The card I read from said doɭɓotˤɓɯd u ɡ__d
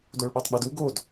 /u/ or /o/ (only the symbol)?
o